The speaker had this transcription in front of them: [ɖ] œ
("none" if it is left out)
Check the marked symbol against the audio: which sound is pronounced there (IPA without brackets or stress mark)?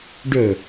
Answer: ɖ